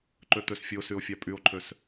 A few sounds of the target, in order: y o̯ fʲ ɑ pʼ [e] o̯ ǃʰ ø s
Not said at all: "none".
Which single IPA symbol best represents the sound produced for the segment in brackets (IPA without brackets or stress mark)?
y